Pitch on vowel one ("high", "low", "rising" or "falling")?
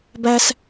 high